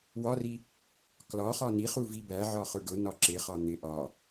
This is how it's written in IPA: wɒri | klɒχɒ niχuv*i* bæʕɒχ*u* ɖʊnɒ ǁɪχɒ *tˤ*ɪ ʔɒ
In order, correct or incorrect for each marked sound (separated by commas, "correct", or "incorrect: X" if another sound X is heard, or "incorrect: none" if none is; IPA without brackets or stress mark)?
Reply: correct, incorrect: ʊ, incorrect: n̪